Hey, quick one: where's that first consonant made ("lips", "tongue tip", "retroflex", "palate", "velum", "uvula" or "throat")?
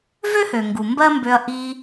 lips